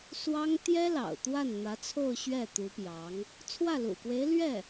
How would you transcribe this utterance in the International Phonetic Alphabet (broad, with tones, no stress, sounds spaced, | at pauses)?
s w ɑ˥ ŋ t̪ j ɛ˥ l ɑ̰˨˩ ʊ̯ t̪ w a˥˩ n n̪ ä˧˥ t͡sʰ o˥˧ ʊ̯ ɕ ɥ ɛ˥˩ t̪ u˧˥ p j ɑ˧˥ ŋ | t͡sʰ w ä˥˩ l ṵ˨˩ k w e˧˥ ɪ̯ l ɥ ɛ˥˩